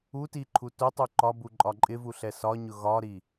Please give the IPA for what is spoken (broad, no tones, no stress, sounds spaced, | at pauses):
u t i ǃʰ u t ʊ tˤ u ǃ ɒ b u ǃʼ ɒ ǃʼ ɪ v u ɬ ɛ s ɒ ɲ ʊ ɣ ɒ ɾ i